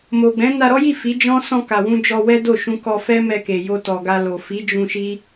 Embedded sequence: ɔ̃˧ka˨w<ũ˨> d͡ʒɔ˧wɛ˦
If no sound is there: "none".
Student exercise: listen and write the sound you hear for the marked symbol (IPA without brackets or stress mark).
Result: ũ˧